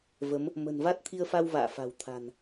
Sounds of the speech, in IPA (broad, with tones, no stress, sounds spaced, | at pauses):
v ə˨˦ m | m ə̤˨˩ n v a˦˥ t̚ t̪ʰ i˧ ə̯ f a˧ w v a̰ː˧˨ f a̤˨˩ w t̪ʰ a̤˨˩ n